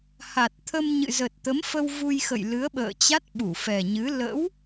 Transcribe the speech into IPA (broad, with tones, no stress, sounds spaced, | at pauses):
h a˨˩ t̚ t̪ʰ ə˧ m ɲ ɨ̰˧˨ z ə˨˩ t̚ t̪ ə˨˦ m f ə˧ w v u˧ j x ə̰˧˨ j l ɨ˨˦ ə̯ ɓ ə̰ː˧˨ t͡ɕ a˦˥ t̚ ɓ u˧˩ f ɛ˨˩ ɲ ɨ˨˦ l ə̰˧˥ w